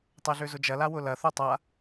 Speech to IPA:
tˤ ɛ ɮ ø z ʊ d͡ʒ ɐ l a w ʊ l ɐ θ o tˤ a

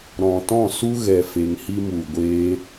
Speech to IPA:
ɾ ɔ̃˨ t ɔ̃˦˨ s u˦ ɣ ɛ˨ f e˧ ŋ h i˦ m u˨ ɡʷ eː˧

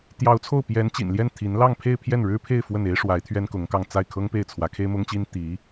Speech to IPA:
t̪ j ɑ˧˥ ʊ̯ t͡sʰ o˥˩ ʊ̯ p j ɛ˧˥ n t͡ɕ ḭ˨˩ n l j ɛ˥˩ n t̪ʰ i˧˥ n l ɑ˥˧ ŋ pʰ e˥˧ ɪ̯ pʰ j ɛ˥˩ n ɻ ɻ̩˥ pʰ e˥˧ ɪ̯ f w ə˥˩ n e˥ ɪ̯ ʂ w a˧˥ ɪ̯ t̪ʰ ɥ ɛ˥ n k ʊ˧˥ ŋ k ɑ˥˧ ŋ t͡s a˥˩ ɪ̯ kʰ ɤ˥ ŋ p e˥˩ ɪ̯ t͡sʰ w ä˧˥ kʰ e˥ ɪ̯ m ʊ˥ ŋ t͡ɕ i˥ n t̪ i˧˥

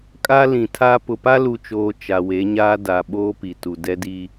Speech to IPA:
kʼ a˦ l ĩ˨ tʰ a˦ p ʊ˨ p a˦ l u˨ t͡ʃ oː˨ t͡ʃ a˨ w e˨˦ ɲ aː˦ d a˨ ɓ oː˦ p i˨ t u˨ d ɛ˦ d i˦

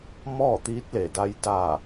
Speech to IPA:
m ɔː˥˨ t̪ iː˧˥ t̚ l e˧˩ d a˧ j d aː˧˩

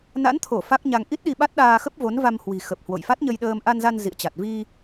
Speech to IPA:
n a̰˧˥ n t̪ʰ o˧˩ f a˦˥ k̚ ɲ a˧ ŋ ʔ i˦˥ t̚ ɗ i˧ ɓ a˦˥ t̚ ɗ aː˧ x ə˦˥ p̚ v o˨˦ n v a˧ m h w i̤˨˩ x ə˨˩ p̚ h w o̰˧˨ j f a˦˥ t̚ ɲ ə˧ j ɗ əː˧ m ʔ a˧ n z a˧ n z ḭ˧˨ ə̯ t͡ɕ a˨˩ t̚ v i˧

